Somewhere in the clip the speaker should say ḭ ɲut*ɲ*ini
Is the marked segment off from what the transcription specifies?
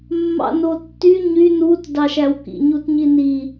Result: no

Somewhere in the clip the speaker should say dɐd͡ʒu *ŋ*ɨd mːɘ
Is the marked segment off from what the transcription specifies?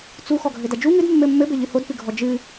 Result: no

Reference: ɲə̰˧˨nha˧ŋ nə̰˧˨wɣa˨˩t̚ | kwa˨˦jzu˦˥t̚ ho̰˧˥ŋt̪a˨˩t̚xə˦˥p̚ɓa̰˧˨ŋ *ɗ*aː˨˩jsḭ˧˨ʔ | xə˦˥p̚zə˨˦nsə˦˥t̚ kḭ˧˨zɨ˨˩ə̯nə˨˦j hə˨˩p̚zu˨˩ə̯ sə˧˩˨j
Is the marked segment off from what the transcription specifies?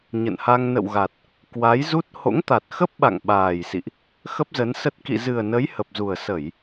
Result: yes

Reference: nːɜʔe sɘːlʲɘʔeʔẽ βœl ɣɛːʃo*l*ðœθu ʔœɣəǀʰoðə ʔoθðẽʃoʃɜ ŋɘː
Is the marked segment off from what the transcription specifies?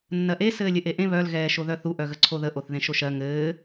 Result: yes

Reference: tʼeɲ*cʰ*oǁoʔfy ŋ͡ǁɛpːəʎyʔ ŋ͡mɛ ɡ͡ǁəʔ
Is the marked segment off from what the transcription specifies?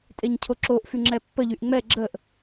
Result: no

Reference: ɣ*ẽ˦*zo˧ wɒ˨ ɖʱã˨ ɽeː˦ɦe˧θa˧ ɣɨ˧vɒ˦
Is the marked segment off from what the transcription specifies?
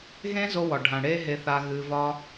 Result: no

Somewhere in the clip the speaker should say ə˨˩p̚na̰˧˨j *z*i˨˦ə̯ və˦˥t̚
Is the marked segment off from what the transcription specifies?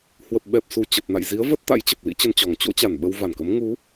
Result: no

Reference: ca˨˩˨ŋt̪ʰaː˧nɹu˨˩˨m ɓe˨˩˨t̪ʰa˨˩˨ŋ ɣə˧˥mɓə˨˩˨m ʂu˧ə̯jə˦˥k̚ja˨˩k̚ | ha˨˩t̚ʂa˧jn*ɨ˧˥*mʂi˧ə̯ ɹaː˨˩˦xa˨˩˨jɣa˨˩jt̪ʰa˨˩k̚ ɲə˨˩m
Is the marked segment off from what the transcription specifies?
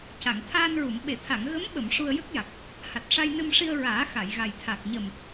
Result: yes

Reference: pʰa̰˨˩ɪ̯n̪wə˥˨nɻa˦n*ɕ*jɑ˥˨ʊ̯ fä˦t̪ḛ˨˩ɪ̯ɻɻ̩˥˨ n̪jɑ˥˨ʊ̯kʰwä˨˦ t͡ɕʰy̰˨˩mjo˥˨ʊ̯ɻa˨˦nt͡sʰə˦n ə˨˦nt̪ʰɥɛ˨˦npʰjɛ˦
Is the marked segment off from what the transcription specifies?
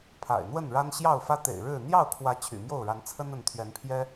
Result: no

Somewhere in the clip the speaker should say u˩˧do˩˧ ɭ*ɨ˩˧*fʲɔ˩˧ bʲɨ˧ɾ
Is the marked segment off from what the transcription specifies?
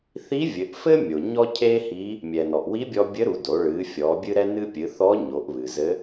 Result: no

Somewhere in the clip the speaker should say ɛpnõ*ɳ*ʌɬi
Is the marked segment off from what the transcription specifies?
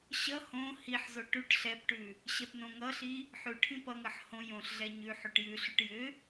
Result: yes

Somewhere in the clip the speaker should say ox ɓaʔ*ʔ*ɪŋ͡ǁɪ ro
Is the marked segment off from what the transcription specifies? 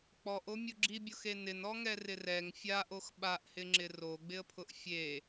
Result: yes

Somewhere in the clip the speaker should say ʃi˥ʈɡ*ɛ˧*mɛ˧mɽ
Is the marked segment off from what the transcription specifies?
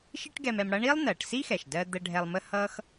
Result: no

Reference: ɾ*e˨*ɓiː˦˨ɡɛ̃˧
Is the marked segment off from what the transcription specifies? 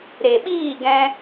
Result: no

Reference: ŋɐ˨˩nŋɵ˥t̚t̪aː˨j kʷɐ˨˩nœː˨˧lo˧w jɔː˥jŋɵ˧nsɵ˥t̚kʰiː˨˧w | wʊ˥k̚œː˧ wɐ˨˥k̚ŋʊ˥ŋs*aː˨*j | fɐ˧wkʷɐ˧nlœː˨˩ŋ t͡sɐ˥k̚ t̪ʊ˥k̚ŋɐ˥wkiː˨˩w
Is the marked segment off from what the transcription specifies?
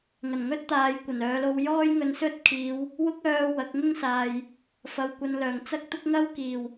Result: no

